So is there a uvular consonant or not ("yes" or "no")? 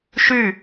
no